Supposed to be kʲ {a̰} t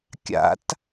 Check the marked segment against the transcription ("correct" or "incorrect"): correct